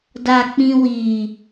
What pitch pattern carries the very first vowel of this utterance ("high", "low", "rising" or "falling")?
low